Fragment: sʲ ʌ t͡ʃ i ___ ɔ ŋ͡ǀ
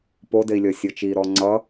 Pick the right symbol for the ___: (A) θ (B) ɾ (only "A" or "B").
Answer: B